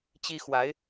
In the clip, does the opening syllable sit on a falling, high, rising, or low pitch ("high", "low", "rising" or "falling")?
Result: high